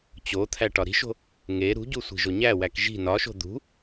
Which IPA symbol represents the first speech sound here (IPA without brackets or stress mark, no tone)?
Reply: t͡ɕ